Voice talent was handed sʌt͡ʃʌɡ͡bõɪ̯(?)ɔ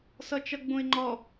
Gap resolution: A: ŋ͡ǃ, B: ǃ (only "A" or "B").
A